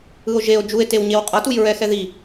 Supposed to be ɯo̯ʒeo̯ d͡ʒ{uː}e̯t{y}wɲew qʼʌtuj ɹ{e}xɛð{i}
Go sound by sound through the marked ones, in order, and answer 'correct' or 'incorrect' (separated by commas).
incorrect, incorrect, incorrect, correct